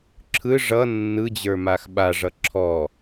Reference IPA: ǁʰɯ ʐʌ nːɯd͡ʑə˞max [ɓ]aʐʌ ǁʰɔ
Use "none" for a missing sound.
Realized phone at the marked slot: ɓ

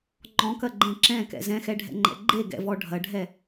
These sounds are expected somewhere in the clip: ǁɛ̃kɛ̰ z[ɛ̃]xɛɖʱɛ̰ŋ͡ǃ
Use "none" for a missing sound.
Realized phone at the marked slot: ɛ̃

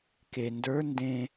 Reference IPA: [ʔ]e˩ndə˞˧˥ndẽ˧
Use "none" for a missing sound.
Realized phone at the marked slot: k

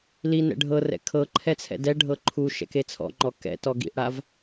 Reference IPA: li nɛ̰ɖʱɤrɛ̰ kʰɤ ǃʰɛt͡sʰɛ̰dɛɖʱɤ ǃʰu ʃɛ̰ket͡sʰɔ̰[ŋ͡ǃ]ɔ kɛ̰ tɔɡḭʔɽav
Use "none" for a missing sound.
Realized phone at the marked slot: ŋ͡ǃ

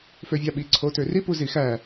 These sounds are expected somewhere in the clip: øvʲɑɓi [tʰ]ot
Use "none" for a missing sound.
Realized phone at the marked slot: ǀʰ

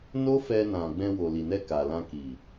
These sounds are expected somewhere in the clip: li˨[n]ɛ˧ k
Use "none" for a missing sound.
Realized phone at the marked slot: n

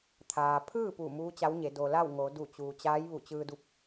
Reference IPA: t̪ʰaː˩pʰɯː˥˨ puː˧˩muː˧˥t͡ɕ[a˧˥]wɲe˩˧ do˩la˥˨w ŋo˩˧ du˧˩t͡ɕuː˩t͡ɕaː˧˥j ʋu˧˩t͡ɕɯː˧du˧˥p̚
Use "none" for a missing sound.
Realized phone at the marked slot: a˧˥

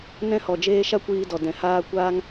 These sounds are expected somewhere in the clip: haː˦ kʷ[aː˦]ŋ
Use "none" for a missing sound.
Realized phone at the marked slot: aː˦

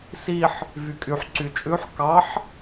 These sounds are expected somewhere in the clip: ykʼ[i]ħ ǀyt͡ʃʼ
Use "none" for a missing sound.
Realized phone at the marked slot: y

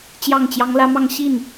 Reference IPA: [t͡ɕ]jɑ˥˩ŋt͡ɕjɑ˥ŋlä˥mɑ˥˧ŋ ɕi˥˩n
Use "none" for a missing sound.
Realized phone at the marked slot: t͡ɕ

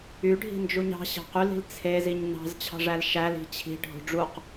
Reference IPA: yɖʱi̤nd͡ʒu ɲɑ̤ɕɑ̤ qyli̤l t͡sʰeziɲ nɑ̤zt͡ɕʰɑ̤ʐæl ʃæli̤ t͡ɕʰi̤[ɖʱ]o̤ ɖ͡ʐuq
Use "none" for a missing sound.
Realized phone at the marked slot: ɖʱ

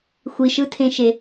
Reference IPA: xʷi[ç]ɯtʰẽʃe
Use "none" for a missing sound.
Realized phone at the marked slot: ʃ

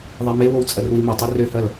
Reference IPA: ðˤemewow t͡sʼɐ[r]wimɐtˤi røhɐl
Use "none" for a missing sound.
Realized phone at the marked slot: r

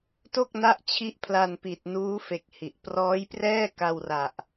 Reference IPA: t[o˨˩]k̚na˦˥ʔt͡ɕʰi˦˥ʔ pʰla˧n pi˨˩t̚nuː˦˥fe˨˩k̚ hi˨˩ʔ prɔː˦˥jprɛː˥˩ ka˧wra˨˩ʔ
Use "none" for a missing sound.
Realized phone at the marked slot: o˥˩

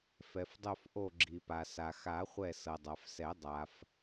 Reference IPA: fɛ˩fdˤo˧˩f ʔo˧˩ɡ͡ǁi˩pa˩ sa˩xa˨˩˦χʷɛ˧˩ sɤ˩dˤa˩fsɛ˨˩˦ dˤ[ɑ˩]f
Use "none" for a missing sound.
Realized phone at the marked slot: a˩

